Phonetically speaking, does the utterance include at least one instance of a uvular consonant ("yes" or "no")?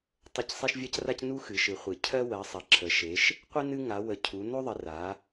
yes